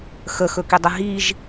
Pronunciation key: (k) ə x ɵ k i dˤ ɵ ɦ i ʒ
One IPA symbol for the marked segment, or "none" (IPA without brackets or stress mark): x